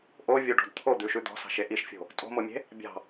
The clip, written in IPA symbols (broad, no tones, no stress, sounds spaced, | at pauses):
ʔ o vʲ o ɖ ɔ̤ d t̪ʰ o d̪ ʉ ʃ ʉ d̪ ɔ̤ s ɑ̤ ʃ e ʔ i ʃ fʲ o̤ | tʼ o̤ m o mʲ e̤ | bʲ ɑ̤